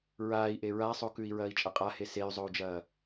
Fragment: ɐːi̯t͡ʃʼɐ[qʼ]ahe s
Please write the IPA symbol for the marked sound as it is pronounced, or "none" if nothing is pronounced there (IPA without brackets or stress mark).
qʼ